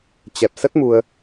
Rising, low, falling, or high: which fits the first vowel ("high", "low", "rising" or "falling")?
low